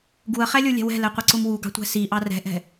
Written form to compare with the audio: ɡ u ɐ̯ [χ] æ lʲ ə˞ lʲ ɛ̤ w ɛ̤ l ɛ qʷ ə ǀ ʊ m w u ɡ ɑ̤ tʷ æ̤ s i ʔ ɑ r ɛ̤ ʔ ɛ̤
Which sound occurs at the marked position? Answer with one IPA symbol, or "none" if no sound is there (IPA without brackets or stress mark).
χ